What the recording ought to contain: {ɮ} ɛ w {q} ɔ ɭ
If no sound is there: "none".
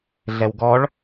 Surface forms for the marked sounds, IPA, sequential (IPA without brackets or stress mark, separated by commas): ɮ, ɡ